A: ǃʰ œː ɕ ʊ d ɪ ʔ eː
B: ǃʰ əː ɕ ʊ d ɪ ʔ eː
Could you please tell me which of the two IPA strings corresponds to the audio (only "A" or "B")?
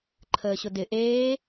B